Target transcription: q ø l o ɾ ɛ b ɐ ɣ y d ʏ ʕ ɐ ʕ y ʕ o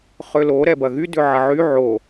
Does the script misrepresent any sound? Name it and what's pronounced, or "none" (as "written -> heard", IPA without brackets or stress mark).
q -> χ